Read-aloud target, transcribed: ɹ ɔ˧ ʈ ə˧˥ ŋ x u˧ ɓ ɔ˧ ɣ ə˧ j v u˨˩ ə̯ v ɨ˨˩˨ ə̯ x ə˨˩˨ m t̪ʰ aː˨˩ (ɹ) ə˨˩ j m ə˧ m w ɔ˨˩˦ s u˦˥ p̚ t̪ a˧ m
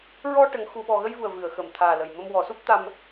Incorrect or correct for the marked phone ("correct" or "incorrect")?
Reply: incorrect